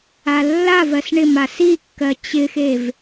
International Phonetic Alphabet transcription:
alːavɜs ɳɪmas ikːɜ t͡ɕɪxev

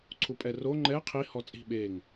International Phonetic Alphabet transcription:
ǀʰupʼɛro ŋ͡ǃɛ qʰi hɔt͡sʼi̤ ɓeŋ

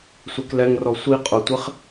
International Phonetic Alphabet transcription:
sʷɛklɛŋrɔ sʷi qʼʊtʷeχ

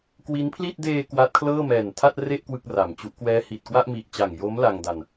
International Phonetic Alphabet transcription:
kwi˦˥npʰli˥˩t̚ deː˧ kwa˦˥t̚kʰlɤː˥˩ mɛː˨˩ntʰa˥˩t̚re˥˩ʔ kwɯ˥˩k̚ra˨˩mt͡ɕu˦˥ʔ kwɛː˦˥hi˨˩t̚kwa˥˩ʔ mi˨˩ʔt͡ɕa˨˩ŋjo˦˥m la˧ŋda˧n

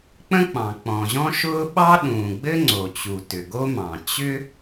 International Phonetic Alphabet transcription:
k͡pə̃˥k͡pɑ̃˩ k͡pɔ̃˩ʑɔ̃˥ʃʊː˥ ɓɑ˥ ɗũː˩ɡ͡bɘ˥ŋ͡ǀo˩t͡ɕu˩ tʏ˩ɡo˥mɑ̃˩ t͡ɕʏ˥

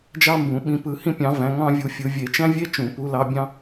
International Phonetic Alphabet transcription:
d͡ʒɑ˥mbũ˨˩˦ ɓĩ˨˩˦pɯ˨˩˦hĩ˥pʲɑ̃˨˦ væ̃˨˦ ŋɑ̃˥vʲu˨˦fʲɯ˨˩˦ vʲe˨˩˦t͡ʃæ̃˥vʲe˥ t͡ʃũ˨˩˦pu˨˦lɑ˨˦bʲɑ̃˥

